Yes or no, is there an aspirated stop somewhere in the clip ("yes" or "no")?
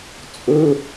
no